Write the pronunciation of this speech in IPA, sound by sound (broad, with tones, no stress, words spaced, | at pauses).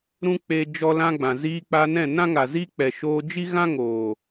ɾũ˦k͡pe˧ d͡ʒɔ˦lã˦ɡ͡bã˨ ziː˧k͡pa˧nɛ̃˦˨ nã˦ŋa˨ zi˦k͡pɛ˨ ʃoː˧ d͡ʒi˦ɣã˦ŋoː˨